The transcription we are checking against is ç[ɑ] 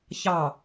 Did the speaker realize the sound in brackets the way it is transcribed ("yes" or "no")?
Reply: yes